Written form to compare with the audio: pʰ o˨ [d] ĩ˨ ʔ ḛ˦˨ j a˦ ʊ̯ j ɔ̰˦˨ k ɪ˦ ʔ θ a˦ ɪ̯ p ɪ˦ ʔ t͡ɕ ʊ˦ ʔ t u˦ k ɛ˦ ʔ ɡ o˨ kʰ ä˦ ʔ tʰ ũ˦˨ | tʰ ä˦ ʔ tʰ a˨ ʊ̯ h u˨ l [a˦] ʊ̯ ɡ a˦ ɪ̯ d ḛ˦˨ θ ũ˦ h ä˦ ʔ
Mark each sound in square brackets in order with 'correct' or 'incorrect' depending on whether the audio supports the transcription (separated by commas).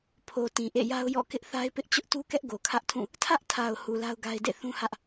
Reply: incorrect, correct